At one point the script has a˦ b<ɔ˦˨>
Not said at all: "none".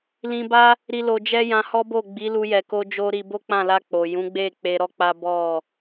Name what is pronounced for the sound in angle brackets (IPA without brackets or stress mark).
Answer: ɔ˦˨